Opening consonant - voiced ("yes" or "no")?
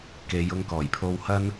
no